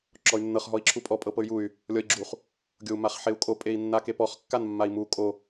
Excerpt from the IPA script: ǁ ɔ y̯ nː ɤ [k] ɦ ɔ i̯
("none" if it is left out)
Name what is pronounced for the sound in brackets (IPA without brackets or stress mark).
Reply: χ